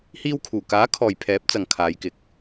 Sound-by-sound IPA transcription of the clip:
h iː˧ w kʰ uː˨˩ k aː˨˥ kʰ ɔː˨ j pʰ ɛː˨˥ p̚ t͡s ɐ˨ ŋ kʰ aː˨˧ j k ɪ˨ k̚

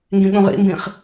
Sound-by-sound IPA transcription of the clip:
ŋ ɡ ĩ ɠ ũ ʁ ḭ m b ĩ χ

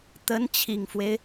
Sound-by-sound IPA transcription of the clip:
t̪ ə˧˥ n t͡ɕʰ i˨˩ ŋ f w e˦ ɪ̯

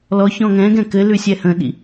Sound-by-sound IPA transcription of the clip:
l ɔ ç ɔ̃ ŋ ɛ̃ ɡ ɛ̃ k ɘ l ʉ sʲ ɛ h ə̃ ɗ ḭ

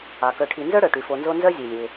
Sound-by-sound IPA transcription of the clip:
ɑ˩ k œ˨ ʈʰ i˨ n z œ˥ ɽ œ˩ ʈ y˩ f o˨ n z o˦ n z œ˥ zʲ e˩ lʲ e˩

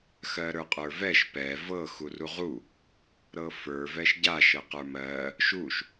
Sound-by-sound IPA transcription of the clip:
x ɜ ɾ ə˞ qʼ ə˞ v ɛ ʃ p ɛ v ɤ x u r u ʁ u | ɾ ɤ f ə˞ v ɛ ʃ ɟ a ʃ ɤ q ə˞ m ɜ | ʃ u ʃ

